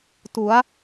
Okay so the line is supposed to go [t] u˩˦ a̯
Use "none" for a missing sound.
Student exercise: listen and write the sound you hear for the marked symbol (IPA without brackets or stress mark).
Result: t